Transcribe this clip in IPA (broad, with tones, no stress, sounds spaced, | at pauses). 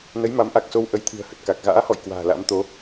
n ə˨˦ j m a˨˦ m ʔ a˨˩ k̚ s o˧ w ʔ ə˨˦ j t̪ʰ ɨ̤˨˩ ə̯ h ə˨˩ t̚ k a˨˩ k̚ ɣ a̰ː˧˥ h ɔ̰˧˨ j k w a̤ː˨˩ l a̰˧˥ m t̪ o˨˦